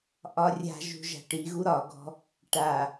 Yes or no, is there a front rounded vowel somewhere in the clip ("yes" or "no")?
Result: no